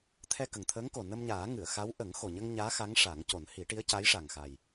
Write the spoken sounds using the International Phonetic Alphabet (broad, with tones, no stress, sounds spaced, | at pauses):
t̪ʰ ɛ˧ k ə˨˩ ŋ t̪ʰ əː˧˥ ŋ k o˨˩ n ə˧ m ɲ aː˨˩˦ ŋ ɨ˨˩˨ ə̯ x a˧˥ w ʔ ə˨˩˦ ŋ x o˨˩ ɲ ə˧ ŋ ɲ aː˧˥ x a˧˥ ŋ ʂ a˨˩˦ ŋ c o˨˩˦ n h i˨˩˦ ʈ i˧˥ ə̯ c a˧˥ j ʂ a˨˩ ŋ x a˨˩ j